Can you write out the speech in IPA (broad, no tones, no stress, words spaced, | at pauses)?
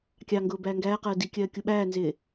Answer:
kʲɑŋɡʊː bæːŋɡæːqɜː dikʲɜː kʲuɓæːnzɪː